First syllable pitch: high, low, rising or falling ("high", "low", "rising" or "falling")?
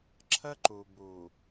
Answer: high